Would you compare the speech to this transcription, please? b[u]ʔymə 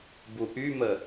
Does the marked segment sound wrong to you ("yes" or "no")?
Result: no